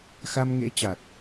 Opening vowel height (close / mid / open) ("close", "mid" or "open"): open